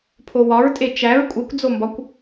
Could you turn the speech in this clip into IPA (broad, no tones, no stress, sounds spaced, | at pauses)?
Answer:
pʰ o w ɒ ɹ tʼ e t͡ʃ æ ɹ kʷʼ e kʷ d͡z o m b ɒ kʷ